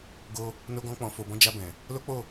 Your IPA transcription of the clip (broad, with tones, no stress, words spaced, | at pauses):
ɡo˧ | no˧ɡɔ̃˧k͡pɔ̃˨ fo˨bɔ̃˨˦d͡ʒa˧bɛ̃˨ | lo˦ k͡po˦˨